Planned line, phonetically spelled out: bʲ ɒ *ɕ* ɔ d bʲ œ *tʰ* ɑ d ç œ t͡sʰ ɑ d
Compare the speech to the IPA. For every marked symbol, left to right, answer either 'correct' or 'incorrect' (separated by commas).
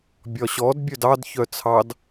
correct, incorrect